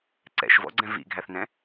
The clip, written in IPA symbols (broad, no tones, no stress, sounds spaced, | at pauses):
ǀ ɛ̰ ʃ v ɔ̰ ɡ͡ǀ ɛ̃ v ḭ ɡʱ æ θ n ɛ̃